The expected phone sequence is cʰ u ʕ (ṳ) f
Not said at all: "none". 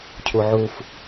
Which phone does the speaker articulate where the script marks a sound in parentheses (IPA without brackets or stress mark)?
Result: u